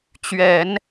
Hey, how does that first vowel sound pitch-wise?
low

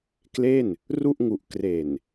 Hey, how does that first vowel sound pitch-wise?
falling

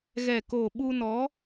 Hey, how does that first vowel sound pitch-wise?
low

